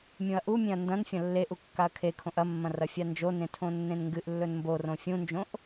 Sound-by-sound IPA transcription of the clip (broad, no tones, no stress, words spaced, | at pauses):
mʲũɐ̯ʔumʲẽɐ̯ ndɐ̃n fʲɐ̃lːeʔu kːaɐ̯kʰekʰõʔ ɐmːɐ̃ rɐfʲand͡ʒonẽ tʰõnːẽnŋɡɨʔlːɵn mborõ fʲũnd͡ʒõʔ